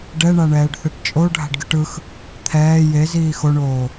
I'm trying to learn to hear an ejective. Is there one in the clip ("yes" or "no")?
yes